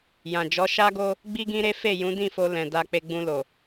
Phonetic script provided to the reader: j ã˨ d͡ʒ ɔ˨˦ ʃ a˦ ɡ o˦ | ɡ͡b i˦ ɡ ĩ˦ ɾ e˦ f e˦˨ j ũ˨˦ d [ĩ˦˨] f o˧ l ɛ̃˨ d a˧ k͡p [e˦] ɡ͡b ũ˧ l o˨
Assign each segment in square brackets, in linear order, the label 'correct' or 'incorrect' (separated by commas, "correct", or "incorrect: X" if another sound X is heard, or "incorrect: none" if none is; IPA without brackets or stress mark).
correct, incorrect: e˧